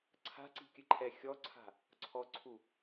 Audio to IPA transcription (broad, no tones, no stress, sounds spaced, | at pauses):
ǀʰ a̤ ǀ i̤ kʲ ɨ ǃʰ ɛ xʲ ɔ ǀʰ a̤ | ǀʰ ɔ ǀʰ u